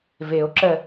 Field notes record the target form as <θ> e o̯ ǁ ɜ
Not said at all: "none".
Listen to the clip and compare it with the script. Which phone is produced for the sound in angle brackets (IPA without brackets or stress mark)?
v